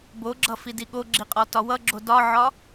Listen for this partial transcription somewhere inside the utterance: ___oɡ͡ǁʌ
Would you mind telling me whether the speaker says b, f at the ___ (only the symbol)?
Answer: b